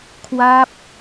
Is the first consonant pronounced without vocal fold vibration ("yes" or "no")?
yes